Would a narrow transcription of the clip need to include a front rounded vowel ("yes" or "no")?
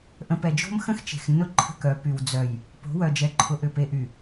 yes